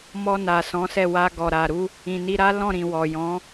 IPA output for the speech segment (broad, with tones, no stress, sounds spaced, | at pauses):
m ɔ˧ n a˨ s ɔ̃˨˦ s ɛ˦˨ w a˧ ɡ ɔ˨ ɾ a˨ ɾ u˧ | ĩ˨ n i˧ ɾ a˦ l ɔ̃˦˨ ɾ ĩ˨ w ɔ˨ j ɔ̃˨˦